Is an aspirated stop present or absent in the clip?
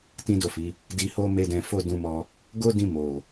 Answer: absent